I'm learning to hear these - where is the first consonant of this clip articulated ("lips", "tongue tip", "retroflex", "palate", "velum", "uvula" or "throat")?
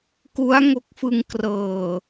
velum